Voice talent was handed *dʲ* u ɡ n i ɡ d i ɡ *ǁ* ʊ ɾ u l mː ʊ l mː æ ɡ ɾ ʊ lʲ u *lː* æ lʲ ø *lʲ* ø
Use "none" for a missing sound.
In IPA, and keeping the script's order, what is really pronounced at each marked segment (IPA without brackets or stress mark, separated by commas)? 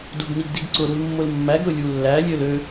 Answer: d, ǀ, lː, l